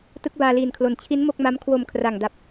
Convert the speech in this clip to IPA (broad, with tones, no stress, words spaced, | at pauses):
tɯ˦˥k̚baː˧liː˨˩nkʰlo˨˩n t͡ɕʰi˦˥nmo˥˩k̚ma˦˥m kʰwo˧mkʰra˨˩ŋda˨˩p̚